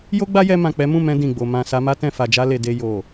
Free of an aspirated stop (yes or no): yes